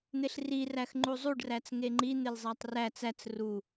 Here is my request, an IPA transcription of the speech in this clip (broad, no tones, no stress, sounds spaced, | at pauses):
n̪ e ɬ r i r æ x ŋ͡ǃ u zˤ u ɖ r æ t͡s ŋ e ŋ͡ǃ i n̪ e l zˤ æ tˤ r æ t͡s æ t͡s r u